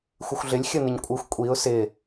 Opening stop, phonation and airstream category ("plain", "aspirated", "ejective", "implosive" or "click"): ejective